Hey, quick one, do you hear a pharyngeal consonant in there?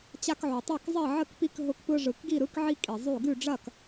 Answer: yes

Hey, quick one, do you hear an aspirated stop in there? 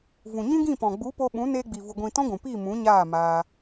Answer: no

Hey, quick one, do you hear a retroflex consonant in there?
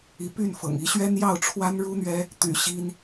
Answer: yes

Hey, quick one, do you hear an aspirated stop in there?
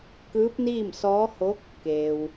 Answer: no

